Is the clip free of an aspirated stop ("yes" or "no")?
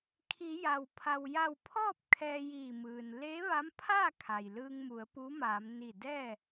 no